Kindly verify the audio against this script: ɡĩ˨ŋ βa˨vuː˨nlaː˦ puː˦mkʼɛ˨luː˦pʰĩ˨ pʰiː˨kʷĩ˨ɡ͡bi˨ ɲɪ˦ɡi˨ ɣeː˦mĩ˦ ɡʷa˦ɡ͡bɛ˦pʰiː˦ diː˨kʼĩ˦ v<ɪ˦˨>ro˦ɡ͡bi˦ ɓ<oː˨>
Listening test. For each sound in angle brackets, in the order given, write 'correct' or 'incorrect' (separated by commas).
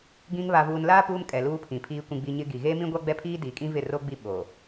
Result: correct, correct